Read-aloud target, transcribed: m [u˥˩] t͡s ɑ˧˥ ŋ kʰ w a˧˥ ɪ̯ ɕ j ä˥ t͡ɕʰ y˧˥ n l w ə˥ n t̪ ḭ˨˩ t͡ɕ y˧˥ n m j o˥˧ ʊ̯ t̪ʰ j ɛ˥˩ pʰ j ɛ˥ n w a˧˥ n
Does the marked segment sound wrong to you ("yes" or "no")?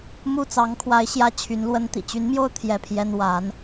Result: no